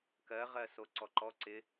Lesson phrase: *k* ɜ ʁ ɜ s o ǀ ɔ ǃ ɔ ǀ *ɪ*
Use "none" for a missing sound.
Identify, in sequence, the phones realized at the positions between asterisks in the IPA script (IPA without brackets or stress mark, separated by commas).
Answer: k, ɪ